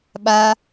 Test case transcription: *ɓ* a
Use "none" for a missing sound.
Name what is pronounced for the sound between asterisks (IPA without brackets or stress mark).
ɓ